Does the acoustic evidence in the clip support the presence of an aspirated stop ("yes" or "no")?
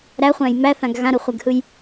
no